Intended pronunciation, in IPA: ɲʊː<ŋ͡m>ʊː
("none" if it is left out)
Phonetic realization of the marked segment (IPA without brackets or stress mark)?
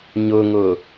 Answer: ŋ